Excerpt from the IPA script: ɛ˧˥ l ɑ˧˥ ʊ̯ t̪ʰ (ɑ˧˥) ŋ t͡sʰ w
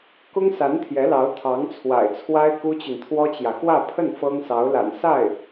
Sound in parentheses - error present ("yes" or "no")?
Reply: no